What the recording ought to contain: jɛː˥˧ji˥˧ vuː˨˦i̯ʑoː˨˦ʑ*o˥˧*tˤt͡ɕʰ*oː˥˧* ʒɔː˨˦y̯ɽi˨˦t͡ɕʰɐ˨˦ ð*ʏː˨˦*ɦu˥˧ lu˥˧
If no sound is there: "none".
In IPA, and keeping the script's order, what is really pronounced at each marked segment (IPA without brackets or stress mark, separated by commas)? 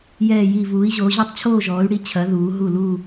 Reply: o˥˧, oː˥˧, uː˨˦